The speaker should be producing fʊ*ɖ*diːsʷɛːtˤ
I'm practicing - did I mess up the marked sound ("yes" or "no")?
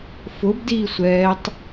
yes